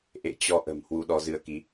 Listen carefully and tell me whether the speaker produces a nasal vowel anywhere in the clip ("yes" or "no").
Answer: no